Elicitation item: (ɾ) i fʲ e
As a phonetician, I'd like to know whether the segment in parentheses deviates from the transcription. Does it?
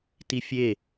yes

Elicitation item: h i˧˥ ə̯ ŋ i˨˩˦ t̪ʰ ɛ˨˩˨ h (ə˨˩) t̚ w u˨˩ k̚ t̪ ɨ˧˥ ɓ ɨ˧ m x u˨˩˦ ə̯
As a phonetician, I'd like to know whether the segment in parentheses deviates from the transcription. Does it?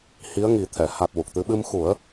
yes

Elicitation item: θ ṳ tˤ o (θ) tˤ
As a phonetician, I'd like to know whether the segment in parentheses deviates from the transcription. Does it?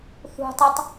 yes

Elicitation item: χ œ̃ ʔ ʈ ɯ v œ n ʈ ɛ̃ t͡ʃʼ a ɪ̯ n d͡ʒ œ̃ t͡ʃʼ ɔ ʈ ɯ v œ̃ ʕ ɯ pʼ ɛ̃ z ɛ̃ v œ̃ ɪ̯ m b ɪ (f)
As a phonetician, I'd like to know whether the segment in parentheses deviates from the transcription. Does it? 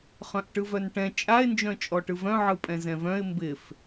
no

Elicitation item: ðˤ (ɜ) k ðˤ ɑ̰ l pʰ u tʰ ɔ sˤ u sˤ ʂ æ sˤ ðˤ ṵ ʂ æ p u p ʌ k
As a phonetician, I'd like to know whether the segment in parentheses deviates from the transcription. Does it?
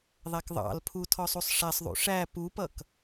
yes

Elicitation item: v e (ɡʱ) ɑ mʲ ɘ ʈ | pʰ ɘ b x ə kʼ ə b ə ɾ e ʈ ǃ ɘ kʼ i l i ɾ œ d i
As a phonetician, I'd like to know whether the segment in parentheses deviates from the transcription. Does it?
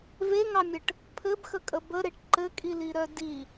yes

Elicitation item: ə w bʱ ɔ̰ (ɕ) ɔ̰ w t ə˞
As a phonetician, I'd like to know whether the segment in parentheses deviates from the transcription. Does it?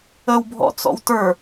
yes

